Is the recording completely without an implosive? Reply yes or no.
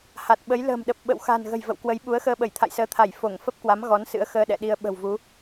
no